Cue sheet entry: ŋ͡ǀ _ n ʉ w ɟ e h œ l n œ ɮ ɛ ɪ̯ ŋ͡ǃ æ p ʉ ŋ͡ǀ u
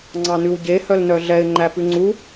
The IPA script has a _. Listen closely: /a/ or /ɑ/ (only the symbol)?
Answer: ɑ